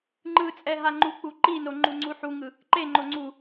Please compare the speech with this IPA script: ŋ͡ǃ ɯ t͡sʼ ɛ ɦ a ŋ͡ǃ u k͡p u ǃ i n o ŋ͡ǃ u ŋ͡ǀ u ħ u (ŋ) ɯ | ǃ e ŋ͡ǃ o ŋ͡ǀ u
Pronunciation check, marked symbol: correct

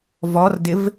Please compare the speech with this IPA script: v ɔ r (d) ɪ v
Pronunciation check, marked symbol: correct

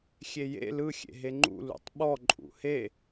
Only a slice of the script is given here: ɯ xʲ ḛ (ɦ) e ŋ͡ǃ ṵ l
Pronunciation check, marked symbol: correct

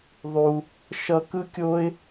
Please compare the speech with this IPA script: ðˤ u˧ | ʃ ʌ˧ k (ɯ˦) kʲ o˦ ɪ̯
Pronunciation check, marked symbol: correct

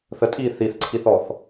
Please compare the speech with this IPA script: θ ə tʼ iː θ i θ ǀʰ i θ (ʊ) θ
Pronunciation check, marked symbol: incorrect: ɔ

